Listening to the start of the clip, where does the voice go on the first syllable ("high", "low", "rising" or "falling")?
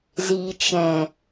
low